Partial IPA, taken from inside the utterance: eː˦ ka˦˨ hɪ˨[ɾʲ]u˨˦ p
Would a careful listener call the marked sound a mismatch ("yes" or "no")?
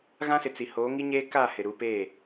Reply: yes